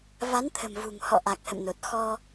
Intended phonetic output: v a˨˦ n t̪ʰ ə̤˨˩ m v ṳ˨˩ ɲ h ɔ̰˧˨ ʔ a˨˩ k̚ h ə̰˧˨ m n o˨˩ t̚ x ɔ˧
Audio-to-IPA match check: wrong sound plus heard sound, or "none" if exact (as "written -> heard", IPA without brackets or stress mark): ɲ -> ŋ